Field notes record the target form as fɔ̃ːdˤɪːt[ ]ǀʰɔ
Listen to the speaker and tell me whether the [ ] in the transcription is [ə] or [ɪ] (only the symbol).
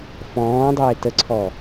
ə